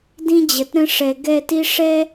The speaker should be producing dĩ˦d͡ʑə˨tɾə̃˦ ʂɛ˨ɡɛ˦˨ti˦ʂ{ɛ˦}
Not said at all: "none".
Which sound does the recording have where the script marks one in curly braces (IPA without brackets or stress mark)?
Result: ɛ˦